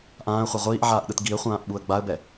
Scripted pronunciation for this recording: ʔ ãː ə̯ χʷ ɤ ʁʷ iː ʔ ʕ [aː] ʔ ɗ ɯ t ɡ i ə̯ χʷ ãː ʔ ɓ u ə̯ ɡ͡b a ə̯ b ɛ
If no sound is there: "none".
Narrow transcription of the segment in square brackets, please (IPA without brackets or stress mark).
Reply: aː